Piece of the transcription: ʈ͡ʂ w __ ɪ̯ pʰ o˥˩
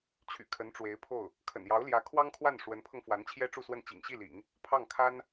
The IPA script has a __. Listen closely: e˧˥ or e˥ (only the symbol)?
e˧˥